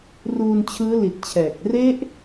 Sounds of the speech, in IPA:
ruː˧nt͡ɕʰɯː˦˥li˨˩t̚t͡ɕʰɛː˨˩k̚ re˦˥ʔ

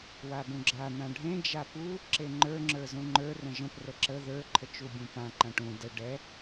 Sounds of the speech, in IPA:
wabũɡ͡ǁa n̪ãɖʱẽ d͡ʒapu | ǁeŋ͡ǃə˞ ŋ͡ǁə˞zũŋ͡ǃə˞ rə̃ʒə̃p rəǁə ðə˞ ǃʰət͡ʃubʲũpã ǃãʈũ də ɖɛ

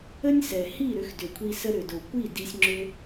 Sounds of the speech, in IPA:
ə˦nʲsɛ˨hi˦˨ɾʏ˧x dʏ˨kʷʰi˧sə˧ ɾʏ˨d o˨kʷi˦˨ di˧sʲŋ͡ǁʏ˦

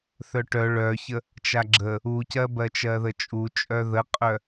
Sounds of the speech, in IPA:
θœʈœ ɭœçə | t͡ʃaɡ͡ǁə | ucɜ bɜt͡ʃɜðət͡ʃʼu t͡ʃʼœðəqʼœ

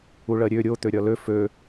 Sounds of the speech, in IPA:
uɭɜɾʲø ɾʲo t̪øɾʲɒlø fø

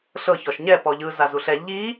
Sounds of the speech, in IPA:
ɬɤ çɔʃɲɛ pɔʎɯ zazuɬɛ ʎi

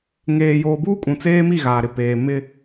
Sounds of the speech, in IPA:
ŋeː˨joː˨buː˦ kʼũ˨t͡seː˦mi˦˨ ɣaː˨ ɾɪ˨peː˨ mɪ˦

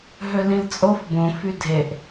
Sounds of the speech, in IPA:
ɦølĩlt͡sʼof bõ fydʱeʔ

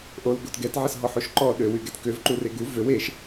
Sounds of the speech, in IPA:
ʔolɡot ɡɛtʕəsɦɔħoʃ ǃɔ ɗøwyɡɛt køvǃure ɡu vøw eʃ

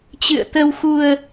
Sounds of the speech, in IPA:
t͡ɕɨ̰˧˨ə̯t̪ə˧wxu˧ə̯

